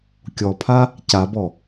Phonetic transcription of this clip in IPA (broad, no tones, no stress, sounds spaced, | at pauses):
kʲ ɔ pʰ a | c a b ɔ